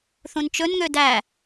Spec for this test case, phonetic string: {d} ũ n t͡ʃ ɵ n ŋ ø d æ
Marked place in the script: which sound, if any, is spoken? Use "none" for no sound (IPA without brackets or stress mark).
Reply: θ